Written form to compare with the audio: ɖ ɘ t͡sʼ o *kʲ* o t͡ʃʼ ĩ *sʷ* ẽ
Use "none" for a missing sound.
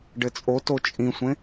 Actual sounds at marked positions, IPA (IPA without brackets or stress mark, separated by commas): t, sʷ